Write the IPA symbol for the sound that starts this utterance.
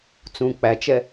t͡s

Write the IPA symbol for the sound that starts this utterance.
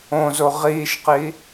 õ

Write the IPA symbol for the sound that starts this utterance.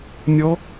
nʲ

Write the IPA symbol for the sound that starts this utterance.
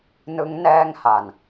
n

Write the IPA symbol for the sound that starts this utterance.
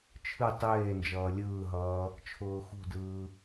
t͡ʃʰ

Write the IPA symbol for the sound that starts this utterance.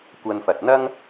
kʷ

